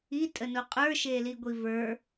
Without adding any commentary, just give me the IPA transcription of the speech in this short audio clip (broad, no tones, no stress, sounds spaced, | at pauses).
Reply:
i tʼ ə n o qʼ ə˞ ʃ e l i ɡʷ i v ə˞